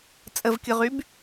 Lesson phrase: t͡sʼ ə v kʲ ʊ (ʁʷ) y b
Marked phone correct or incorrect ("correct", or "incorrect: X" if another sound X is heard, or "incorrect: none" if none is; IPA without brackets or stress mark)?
incorrect: ʁ